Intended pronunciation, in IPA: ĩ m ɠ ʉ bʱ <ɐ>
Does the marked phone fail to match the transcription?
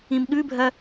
no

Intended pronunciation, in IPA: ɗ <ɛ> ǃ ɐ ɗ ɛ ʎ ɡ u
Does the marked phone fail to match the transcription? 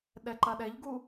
no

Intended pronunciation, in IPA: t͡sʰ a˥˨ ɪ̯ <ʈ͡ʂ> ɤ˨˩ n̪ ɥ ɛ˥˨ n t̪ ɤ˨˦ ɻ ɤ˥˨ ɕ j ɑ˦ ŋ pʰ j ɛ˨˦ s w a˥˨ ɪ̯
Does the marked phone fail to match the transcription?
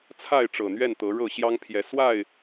no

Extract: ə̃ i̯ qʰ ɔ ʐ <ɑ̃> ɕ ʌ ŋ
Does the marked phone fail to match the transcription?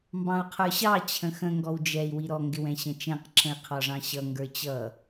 no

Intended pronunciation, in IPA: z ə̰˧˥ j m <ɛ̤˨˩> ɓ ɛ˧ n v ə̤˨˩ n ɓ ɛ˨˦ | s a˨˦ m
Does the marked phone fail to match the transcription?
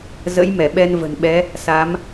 yes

